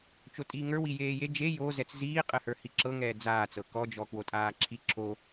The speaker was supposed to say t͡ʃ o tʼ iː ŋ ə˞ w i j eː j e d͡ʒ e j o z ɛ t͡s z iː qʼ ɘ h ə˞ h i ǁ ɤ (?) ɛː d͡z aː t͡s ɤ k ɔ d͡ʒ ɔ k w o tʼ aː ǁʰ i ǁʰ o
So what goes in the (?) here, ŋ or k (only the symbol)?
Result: ŋ